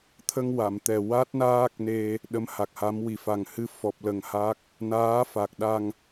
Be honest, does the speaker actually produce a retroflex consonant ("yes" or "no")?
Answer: no